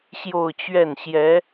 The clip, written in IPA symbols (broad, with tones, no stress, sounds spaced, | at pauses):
ɕ j o˥˧ ʊ̯ t͡ɕ ɥ ɛ˥˩ n ɕ j ɛ˧˥